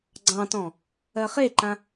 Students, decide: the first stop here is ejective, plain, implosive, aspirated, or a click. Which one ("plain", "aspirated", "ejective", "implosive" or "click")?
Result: click